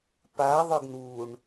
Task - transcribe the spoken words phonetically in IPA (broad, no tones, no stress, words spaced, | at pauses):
paðˤʊɡ nuɳ